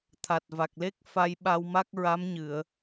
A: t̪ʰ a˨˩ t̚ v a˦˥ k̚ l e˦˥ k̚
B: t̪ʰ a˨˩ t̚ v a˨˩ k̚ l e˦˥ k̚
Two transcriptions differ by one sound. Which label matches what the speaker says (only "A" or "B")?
B